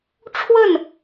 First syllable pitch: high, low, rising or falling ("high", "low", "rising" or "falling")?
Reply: falling